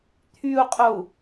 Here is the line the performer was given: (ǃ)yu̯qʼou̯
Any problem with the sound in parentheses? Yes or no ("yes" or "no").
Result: yes